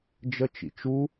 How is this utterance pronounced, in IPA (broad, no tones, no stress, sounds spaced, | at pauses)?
d͡ʒ ə t͡ʃ ḭ t͡ʃ u